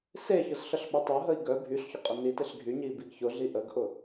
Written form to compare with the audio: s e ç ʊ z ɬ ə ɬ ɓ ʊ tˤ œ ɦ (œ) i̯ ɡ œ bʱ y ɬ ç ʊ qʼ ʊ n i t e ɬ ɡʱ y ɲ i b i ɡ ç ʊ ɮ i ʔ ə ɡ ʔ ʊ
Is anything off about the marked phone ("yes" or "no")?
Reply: yes